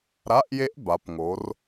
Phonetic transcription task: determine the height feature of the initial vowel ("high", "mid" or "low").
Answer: low